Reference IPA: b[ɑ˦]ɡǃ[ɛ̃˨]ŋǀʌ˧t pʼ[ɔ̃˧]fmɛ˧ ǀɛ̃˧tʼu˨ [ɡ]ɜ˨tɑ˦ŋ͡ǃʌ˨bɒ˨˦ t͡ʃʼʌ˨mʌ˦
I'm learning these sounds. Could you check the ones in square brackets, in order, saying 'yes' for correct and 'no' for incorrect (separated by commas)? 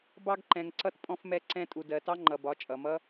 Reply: no, yes, yes, no